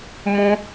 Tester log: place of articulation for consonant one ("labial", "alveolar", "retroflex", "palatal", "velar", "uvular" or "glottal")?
labial